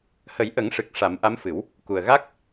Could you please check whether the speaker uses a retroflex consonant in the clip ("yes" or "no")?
yes